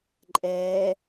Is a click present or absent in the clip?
present